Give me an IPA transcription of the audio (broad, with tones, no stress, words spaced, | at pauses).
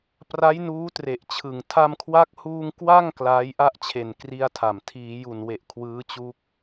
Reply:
pra˦˥j nuː˦˥tre˨˩ʔt͡ɕʰɯ˨˩ŋ tʰa˧mkʰwa˦˥k̚huː˧ŋ kwa˥˩ŋ klaː˦˥jʔa˥˩ʔt͡ɕʰe˨˩n kri˥˩a̯tʰa˨˩m tʰiː˩˦ju˨˩nwe˨˩ʔ kʰwɯː˦˥t͡ɕu˦˥k̚